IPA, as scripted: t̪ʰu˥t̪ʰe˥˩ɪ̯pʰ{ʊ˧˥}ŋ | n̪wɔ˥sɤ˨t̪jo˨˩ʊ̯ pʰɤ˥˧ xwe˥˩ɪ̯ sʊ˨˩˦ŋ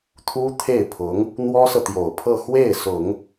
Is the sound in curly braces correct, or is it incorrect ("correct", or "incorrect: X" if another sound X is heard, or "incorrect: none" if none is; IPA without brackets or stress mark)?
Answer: correct